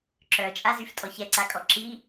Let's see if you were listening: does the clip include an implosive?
no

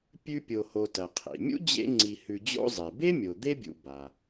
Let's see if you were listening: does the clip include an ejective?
no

